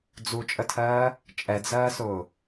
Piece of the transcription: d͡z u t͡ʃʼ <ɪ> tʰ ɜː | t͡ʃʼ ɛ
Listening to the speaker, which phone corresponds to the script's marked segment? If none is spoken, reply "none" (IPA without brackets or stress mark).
ə